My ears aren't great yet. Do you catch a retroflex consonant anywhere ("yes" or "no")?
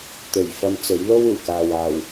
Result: no